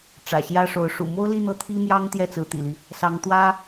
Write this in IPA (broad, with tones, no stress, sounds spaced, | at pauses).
ʈ͡ʂ ä̰˨˩ ɕ j ä˥ ʂ o˧˥ ʊ̯ ʂ ṵ˨˩ m o˥ ʊ̯ l i˥˧ n̪ ɤ˥˩ t̪ʰ i˥ m j ɑ˥ ŋ t̪ j ɛ˥˩ t͡s ɹ̩˧˥ t̪ ḭ˨˩ l i˦ | s ɑ˧˥ ŋ t̪ w ä˥